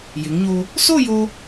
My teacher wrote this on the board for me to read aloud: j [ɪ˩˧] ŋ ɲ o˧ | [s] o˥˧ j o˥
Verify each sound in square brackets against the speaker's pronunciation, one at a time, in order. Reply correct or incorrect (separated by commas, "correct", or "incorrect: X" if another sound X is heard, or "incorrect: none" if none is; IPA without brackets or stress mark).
correct, correct